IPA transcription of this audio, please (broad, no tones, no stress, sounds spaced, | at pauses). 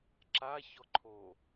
ǁ a ç ɔ ǃʰ o